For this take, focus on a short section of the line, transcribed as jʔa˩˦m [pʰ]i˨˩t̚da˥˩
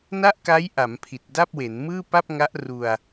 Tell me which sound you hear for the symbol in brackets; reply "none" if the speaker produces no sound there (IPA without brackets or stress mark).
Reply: pʰ